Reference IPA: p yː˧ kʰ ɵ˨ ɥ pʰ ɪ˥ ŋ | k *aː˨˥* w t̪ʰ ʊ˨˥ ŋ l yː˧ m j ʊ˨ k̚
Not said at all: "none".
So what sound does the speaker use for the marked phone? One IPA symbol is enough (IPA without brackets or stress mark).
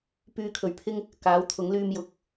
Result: aː˨˥